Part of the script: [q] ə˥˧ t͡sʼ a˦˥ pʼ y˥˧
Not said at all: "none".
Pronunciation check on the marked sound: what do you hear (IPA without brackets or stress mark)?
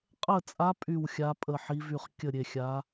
qʼ